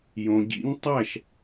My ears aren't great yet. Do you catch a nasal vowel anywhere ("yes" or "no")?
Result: yes